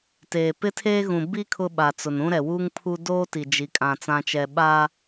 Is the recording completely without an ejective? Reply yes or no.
no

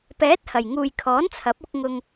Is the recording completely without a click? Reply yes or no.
yes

